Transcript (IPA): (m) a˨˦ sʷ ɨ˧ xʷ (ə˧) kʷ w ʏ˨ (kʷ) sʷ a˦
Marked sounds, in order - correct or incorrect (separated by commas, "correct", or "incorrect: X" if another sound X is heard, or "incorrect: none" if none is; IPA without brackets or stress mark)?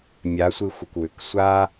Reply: incorrect: mʲ, incorrect: ə˨, incorrect: k